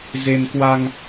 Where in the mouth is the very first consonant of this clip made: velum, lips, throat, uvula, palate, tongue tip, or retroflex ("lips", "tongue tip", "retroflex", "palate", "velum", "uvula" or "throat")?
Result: tongue tip